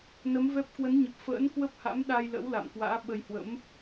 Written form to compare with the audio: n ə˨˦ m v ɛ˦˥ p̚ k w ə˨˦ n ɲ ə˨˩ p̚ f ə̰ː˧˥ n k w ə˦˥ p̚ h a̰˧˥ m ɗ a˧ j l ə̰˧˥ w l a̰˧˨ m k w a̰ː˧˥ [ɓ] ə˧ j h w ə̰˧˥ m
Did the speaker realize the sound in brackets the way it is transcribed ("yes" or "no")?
yes